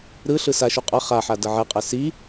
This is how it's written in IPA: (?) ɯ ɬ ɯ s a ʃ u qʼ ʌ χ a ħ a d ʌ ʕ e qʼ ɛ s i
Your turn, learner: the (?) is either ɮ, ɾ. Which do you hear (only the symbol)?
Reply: ɾ